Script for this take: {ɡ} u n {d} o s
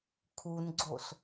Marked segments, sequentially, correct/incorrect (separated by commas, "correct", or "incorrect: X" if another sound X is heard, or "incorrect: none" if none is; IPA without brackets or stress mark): incorrect: kʰ, incorrect: ɡ͡ǀ